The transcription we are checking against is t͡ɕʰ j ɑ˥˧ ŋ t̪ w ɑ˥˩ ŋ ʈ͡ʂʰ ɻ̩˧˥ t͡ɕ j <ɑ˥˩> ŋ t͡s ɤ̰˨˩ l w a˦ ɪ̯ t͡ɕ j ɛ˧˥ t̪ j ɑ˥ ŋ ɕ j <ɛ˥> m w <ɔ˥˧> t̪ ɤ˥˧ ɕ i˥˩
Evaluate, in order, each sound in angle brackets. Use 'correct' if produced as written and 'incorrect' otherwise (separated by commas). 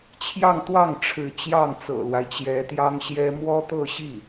correct, correct, incorrect